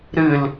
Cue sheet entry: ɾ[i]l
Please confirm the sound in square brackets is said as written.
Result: no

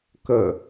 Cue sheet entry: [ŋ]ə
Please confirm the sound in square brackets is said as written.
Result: no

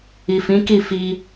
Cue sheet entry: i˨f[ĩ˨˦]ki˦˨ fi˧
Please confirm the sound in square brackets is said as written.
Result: yes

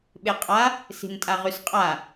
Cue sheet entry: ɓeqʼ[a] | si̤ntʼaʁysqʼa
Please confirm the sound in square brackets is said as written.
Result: yes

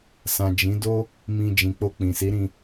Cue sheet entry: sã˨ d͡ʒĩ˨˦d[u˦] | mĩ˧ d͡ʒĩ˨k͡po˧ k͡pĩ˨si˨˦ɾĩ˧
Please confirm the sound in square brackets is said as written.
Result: no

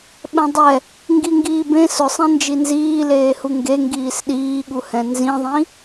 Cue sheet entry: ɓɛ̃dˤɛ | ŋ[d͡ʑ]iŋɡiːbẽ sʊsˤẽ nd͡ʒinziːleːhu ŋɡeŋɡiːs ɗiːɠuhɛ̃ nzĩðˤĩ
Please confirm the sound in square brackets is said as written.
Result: no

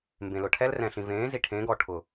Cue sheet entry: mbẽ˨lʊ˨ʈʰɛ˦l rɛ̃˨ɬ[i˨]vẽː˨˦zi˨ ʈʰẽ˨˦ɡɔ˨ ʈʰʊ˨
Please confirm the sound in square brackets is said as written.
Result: no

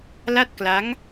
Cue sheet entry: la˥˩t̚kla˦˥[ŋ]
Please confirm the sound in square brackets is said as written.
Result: yes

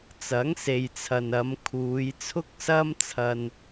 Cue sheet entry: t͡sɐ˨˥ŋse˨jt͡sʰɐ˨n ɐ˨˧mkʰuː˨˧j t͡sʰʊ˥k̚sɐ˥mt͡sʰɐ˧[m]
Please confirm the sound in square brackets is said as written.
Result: no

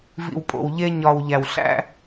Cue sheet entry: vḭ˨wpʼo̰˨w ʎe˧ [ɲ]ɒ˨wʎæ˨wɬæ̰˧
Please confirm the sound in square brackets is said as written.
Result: yes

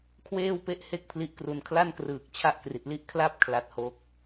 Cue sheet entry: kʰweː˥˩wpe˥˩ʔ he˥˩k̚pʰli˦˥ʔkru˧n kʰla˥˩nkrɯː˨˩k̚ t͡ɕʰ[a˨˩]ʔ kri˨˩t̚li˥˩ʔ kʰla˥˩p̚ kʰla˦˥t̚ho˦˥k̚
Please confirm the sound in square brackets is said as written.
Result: no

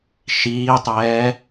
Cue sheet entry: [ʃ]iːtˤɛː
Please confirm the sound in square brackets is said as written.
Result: yes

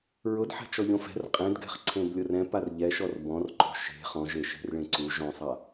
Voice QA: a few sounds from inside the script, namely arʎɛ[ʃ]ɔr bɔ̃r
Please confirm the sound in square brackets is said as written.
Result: yes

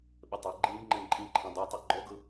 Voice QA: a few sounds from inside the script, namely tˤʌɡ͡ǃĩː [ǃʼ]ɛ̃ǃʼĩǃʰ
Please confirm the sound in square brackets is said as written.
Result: no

